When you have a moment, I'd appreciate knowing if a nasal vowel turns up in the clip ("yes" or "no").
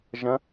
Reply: yes